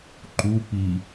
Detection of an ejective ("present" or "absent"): absent